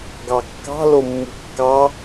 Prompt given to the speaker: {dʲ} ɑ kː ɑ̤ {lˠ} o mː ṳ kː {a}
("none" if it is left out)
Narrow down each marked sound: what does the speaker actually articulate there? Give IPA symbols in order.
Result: ɡ, l, ɑ

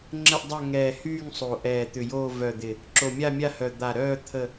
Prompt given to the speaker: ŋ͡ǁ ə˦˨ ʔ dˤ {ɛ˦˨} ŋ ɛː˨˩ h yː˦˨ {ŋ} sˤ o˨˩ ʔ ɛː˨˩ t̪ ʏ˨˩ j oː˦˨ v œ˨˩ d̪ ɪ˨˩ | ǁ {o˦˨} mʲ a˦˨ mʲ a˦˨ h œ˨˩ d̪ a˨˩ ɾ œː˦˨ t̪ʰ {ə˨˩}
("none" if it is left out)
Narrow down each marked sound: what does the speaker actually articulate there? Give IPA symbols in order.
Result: œ˦˨, ŋ, o˨˩, ə˦˨

